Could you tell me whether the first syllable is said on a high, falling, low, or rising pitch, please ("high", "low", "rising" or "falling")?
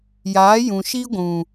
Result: rising